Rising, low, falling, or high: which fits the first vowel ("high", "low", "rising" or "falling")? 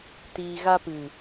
low